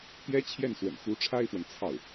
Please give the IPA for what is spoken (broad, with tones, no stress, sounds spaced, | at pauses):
t̪ j ɛ˥ t͡ɕʰ j ɛ˥˩ n s w ə̰˨˩ n x u˧˥ ʈ͡ʂʰ a˥ ɪ̯ f w ə˨ n t͡sʰ ɑ˥˩ ʊ̯